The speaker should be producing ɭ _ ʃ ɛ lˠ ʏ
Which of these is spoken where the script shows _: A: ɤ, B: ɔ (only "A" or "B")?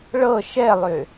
A